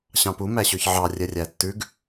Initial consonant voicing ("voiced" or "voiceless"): voiceless